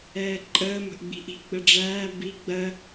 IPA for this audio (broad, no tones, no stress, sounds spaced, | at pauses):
ɛː ǃʼ əː m ə̤ ʔ ɡ͡b i̤ ʔ i̤ ɡ͡b ə ɖ͡ʐ æː b i ɡ͡b ɜ